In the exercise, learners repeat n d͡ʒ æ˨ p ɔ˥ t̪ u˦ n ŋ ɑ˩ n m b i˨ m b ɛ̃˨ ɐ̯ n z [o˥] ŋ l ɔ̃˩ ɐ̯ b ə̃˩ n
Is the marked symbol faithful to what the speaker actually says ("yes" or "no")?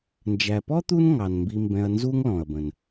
no